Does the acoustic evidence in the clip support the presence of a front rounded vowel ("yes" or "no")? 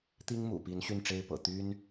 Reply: yes